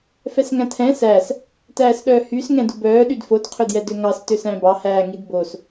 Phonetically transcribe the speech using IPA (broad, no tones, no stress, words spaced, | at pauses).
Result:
fɛsŋæ̃tʰɛ̃ sæs | tæːsɗœːhys ŋɛ̃dubœː ɗydfod qʰɵdjɛdøŋɑs tøsæ̃bɑ hæːŋidbos